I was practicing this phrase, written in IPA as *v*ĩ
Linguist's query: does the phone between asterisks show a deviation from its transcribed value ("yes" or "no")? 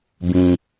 yes